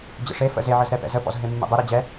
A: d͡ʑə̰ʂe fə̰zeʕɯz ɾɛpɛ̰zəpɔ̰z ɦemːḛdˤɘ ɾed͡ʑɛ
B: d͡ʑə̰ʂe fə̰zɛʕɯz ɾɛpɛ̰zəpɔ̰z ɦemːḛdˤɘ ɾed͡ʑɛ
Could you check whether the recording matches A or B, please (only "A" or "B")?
A